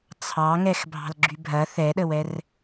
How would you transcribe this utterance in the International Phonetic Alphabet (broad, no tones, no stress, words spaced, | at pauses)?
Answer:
t͡sʰɑŋɛx bʱɑ̤lɡ͡ǁybʱɐ θɛɗəwɛr